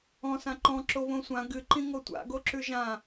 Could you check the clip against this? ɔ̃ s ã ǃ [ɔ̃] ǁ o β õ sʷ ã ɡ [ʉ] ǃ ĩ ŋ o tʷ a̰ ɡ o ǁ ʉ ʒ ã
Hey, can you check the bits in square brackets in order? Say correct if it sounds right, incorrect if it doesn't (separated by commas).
correct, incorrect